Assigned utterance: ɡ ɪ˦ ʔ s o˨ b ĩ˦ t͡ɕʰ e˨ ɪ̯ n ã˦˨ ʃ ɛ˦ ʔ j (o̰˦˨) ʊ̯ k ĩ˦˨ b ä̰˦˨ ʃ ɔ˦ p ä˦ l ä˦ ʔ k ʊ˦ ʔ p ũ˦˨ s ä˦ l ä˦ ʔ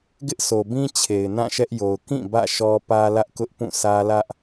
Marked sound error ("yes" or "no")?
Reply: yes